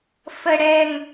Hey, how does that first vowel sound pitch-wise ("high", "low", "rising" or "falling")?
low